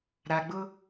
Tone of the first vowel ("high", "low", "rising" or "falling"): low